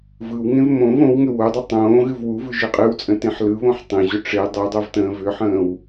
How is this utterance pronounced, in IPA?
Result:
vɯwŋẽv mõv õwŋʏ wodˤɯ tˤõːɣɨv wuvɯ ʒɨqʼɨwt͡sʼə̃ tẽħlɯβõħ tˤẽʑʏ ʈ͡ʂe dˤedˤov tə̃ːvʏħə̃ːw

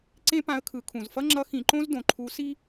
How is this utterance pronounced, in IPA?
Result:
ǀẽ˥pã˧˥ə̯kʰɯ˩˧kʰũ˩z fʌ˥ŋ͡ǁʌ˧˥ xĩ˩˧ǃõ˥z dõ˩ǃʰu˧˥si˥

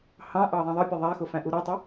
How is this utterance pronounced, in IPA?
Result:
hɑ̃ʔɑ ðˤæ̃ðˤɪpʲʌ ðˤæxʊ fæ̃ʔuɾutˤɛ

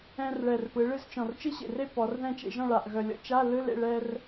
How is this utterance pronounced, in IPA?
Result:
ɛ̃˧rɭɛ˨˩r pɯ˩˧ɭɨ˧zt͡ʃɔ̃˨˩r t͡ʃɨ˥ɕḛ˨˩re˥ pɔ˩˧rðɛ̃˥˨t͡ʃḛ˧ʒɔ̃˥˨ ɭa˨˩ʔɣœ˨˩lʲɔ̰˥ t͡ʃa˧˥˧lɯ˧˥˧lḛ˥˨ ɭɛ˧r

